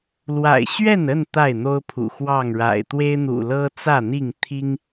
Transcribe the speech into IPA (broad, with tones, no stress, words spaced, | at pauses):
lwa̰˨˩ɪ̯ɕɥɛ˥˨nə˥˨n t̪a˥˨ɪ̯n̪o˦ʊ̯pʰṵ˨˩ xwɑ˥˨ŋɻa̰˨˩ɪ̯ t̪we˦ɪ̯n̪ṵ˨˩ lɤ˦t͡sä˥˨n̪i˥˨ŋ t̪ʰi˦ŋ